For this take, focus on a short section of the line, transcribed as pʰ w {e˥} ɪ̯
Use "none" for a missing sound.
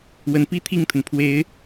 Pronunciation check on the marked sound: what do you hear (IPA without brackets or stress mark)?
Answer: e˧˥